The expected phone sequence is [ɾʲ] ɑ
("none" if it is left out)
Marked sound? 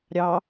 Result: ɾʲ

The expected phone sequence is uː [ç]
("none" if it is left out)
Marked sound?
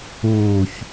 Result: ç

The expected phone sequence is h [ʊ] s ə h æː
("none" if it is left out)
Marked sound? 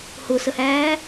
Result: ʊ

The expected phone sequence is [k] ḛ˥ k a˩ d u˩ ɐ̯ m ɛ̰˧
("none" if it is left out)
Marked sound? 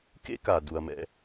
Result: k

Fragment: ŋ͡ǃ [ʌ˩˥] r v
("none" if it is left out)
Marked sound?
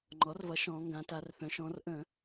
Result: ɔ˩˥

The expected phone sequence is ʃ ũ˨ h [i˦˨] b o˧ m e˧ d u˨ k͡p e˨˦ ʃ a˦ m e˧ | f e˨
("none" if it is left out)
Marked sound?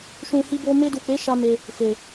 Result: i˧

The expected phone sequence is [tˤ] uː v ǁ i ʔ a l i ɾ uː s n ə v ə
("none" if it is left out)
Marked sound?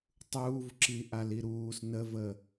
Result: tˤ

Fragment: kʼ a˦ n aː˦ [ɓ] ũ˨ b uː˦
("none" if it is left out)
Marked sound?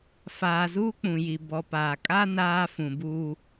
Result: f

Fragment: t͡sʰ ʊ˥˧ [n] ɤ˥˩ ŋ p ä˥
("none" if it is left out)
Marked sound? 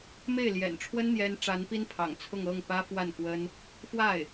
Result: ŋ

